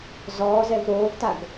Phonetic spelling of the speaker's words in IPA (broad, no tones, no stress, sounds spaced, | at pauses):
z ɔː z ɛ v ɾ oː v t a ɡ